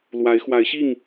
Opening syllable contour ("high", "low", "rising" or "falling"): rising